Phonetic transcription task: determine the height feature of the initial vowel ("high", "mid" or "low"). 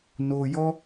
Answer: mid